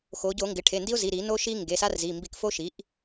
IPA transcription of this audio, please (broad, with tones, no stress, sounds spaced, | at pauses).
x o˩˧ ɟ o˧˩˧ ŋ ɡ ɪ˩˧ ʈʰ e˩˧˩ n d i˦ ʊ̯ z i˩˧˩ ɾ i˧˩˧ n o˦ ʃ i˦ ŋ ɡ e˩˧˩ s a˦ r z i˩˧˩ m b i˧˩˧ k f o˦ ʃ i˩˥ ʔ